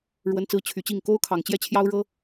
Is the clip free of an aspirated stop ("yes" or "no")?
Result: no